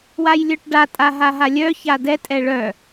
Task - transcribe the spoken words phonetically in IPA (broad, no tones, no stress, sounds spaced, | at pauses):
w a j lʲ œ ʈ ɖ a tʼ a ɦ a ɦ a lʲ œ ç a d ɛ tʼ ɛ ɭ œ